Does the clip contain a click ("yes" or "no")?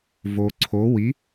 yes